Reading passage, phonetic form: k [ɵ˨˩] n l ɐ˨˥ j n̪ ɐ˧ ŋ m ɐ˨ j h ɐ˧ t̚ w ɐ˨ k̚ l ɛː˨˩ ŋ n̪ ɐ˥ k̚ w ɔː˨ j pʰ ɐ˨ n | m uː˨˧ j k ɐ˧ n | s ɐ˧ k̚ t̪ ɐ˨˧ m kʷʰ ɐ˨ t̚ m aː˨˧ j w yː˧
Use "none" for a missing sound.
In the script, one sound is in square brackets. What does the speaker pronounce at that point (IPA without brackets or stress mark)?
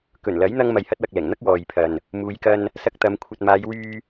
ɵ˨˩